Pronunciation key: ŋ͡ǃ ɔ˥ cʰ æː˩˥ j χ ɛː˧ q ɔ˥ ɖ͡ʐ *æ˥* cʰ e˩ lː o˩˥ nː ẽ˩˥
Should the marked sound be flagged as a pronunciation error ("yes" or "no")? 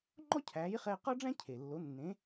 yes